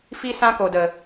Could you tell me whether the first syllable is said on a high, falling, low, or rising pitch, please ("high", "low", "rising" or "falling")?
high